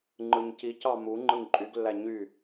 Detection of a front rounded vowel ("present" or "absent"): present